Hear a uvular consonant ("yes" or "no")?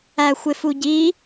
no